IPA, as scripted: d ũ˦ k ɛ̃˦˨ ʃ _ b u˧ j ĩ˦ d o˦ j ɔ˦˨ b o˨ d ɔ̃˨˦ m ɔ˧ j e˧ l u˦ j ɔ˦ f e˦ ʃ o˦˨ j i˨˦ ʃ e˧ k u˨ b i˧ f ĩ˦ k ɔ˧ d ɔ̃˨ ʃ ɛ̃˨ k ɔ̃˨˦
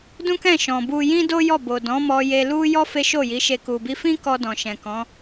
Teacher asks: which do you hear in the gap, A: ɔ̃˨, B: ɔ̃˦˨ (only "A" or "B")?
A